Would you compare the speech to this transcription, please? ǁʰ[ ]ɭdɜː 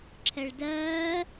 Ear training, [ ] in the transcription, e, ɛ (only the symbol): ɛ